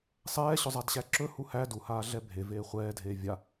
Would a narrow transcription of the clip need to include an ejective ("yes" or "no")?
no